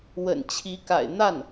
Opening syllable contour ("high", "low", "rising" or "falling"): low